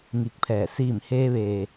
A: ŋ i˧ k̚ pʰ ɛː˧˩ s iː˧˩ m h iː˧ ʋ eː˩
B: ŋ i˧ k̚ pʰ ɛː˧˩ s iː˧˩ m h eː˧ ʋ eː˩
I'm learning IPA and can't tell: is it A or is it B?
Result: B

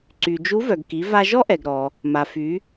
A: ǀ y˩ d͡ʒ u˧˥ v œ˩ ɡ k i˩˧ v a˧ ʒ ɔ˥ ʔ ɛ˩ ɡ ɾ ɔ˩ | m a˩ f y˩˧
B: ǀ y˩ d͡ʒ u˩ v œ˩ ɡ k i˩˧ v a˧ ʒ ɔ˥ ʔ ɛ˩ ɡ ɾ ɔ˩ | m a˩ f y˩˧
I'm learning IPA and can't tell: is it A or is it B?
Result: A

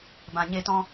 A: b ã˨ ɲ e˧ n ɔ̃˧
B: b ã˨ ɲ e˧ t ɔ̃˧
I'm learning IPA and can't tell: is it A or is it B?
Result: B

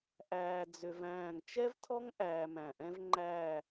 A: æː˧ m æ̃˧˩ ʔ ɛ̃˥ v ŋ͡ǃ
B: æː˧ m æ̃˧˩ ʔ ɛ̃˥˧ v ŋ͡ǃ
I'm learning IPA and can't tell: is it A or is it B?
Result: A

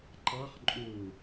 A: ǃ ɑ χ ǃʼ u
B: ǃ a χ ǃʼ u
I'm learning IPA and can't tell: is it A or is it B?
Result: A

